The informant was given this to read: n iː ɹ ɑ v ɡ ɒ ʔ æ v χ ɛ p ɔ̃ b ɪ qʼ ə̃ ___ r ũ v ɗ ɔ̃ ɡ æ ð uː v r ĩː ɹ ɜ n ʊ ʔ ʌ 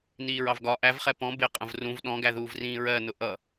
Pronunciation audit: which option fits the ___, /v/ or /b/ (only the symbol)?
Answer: v